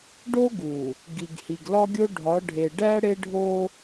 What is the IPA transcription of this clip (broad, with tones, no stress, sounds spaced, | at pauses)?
ɖ o˦ ɡ u˨ | ɡ i˨ ɡ h i˨ ɡ l ɒ˦ ɡʲ o˦ ɖʱ ɒ˨˦ ɖʱ e˨ ɖ æ˦ ɽ e˦ ɖʱ o˦